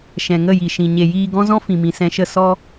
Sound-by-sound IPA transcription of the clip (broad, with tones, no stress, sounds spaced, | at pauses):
ʃ ɛ̃˨ ŋ ə˦˨ j i˨ ʃ ĩ˨ ɲ e˨ j iː˧ ɡ ɔ̃˦ z ɔ̃˦ f ĩ˨ m ĩ˨ s ɛ̃˧ ʃ ə˦˨ s ɔ˧